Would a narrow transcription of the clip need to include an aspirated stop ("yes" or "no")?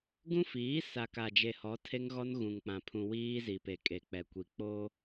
yes